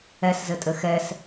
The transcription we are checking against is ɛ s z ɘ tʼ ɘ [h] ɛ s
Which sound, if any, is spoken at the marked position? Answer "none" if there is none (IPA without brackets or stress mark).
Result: x